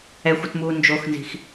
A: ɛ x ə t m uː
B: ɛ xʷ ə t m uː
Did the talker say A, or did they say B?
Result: B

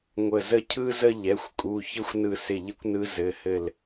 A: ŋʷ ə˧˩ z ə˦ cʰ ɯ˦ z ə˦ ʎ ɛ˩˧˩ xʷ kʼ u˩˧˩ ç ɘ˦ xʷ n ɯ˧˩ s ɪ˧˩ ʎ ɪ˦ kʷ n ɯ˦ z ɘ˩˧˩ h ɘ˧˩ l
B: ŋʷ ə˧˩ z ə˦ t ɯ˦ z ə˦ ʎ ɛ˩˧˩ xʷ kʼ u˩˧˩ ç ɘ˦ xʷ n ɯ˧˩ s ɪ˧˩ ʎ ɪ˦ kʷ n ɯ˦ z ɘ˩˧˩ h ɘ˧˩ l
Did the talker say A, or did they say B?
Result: A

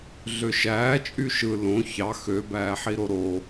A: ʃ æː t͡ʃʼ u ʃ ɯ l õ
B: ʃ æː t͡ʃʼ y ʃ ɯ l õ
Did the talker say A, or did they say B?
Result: B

